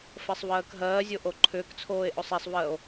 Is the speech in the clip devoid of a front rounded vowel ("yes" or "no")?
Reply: no